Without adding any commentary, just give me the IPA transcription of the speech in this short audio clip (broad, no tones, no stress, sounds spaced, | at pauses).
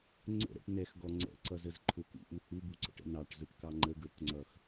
ŋ͡ǀ ə̰ ɾ ɛ̰ ʈ n ɛ x ɡ ɔ ŋ͡ǀ ɛ̰ ǀ ʌ z ə z ǃʰ ʊ k ṵ ʔ u h u b u ǀ ə̰ ʈ ə̰ n ɑ ʈ z ʊ ʈ k ɑ ŋ͡ǃ ə ɡ ə˞ k ŋ͡ǀ ʌ x